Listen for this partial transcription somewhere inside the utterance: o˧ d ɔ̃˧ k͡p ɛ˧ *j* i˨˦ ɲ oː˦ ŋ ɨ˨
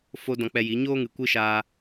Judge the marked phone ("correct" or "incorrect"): correct